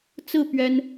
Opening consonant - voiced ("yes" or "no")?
no